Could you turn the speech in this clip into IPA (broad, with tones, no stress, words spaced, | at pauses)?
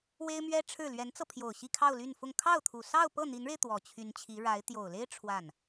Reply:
we˥ɪ̯mɥɛ˥ʈ͡ʂʰɻ̩˥˩ lɥɛ˧˥nt͡sɤ˧pʰjo˨˩ʊ̯ ɕi˥˧kʰɑ˥˧ʊ̯ ly˥˧nfʊ˥˧ŋ kʰɑ˥˩ʊ̯t̪ʰu˨˩ sɑ˥˧ʊ̯pɤ˥˩n̪i˧˥nɻe˧ɪ̯ t̪wɔ˨˩t͡ɕʰy˧˥nt͡ɕʰi˧˥ ɻa˧˥ɪ̯ t̪jo˨˩ʊ̯le˥ɪ̯ ʈ͡ʂʰwa˥˩n